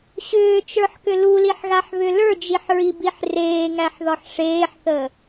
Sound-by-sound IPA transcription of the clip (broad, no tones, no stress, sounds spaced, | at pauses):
ɕ ʏː t͡ʃ ə˞ ħ k ʏ l u l i ħ ɣ a ħ β ʏ l ə˞ d͡ʒ i ħ ɹ i b i ħ r eː ŋ æ ħ ð ɒ ħ ʂ eː ħ θ ə